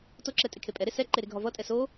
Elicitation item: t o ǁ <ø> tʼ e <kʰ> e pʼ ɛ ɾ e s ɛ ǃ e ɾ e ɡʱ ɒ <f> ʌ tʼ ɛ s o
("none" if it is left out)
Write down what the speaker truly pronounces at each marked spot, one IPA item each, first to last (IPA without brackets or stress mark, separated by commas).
ɛ, kʰ, v